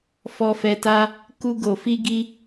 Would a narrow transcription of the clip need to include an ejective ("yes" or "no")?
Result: no